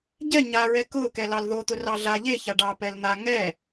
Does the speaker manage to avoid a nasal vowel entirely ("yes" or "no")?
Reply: yes